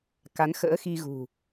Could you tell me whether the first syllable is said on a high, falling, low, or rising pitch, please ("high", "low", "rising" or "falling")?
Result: rising